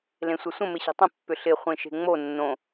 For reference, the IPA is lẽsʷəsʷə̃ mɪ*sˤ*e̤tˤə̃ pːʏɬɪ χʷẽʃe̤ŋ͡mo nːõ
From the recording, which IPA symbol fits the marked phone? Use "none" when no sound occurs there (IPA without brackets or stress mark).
ɕ